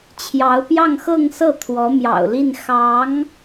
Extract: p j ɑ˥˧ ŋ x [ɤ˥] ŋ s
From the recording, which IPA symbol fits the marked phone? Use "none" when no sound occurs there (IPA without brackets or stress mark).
ɤ˥˧